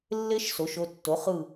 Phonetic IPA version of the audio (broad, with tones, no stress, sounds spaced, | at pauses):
lː e˦˥ ʃ s o˩˥ ʃ o˩˧˩ tː o˩˥ χ ɯ˧˩